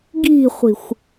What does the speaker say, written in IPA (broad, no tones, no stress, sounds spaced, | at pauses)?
ɡ i̤ χʷ i̤ xʷ